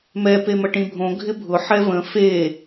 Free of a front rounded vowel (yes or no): yes